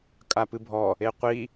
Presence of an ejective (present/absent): present